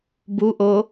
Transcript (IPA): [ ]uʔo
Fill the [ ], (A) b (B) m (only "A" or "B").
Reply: A